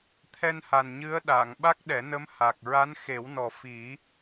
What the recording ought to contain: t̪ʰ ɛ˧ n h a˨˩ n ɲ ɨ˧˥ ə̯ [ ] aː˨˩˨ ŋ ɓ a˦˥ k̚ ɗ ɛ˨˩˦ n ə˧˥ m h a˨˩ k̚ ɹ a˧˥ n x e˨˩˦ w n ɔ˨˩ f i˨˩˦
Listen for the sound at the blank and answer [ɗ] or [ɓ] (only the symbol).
ɗ